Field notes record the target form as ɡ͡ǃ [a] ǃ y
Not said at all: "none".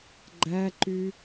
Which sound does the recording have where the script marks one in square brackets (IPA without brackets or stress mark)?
æ